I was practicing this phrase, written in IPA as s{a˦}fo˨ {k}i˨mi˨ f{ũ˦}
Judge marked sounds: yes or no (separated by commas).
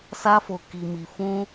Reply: no, yes, no